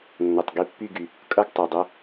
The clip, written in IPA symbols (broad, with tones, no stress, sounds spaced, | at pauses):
nː ʌ˨ tˤ ɡ i˦ pː y˥˨ ɡ y˨ | kʼ ʌ˥˨ ɡ tˤ u˨ dˤ ʌ˦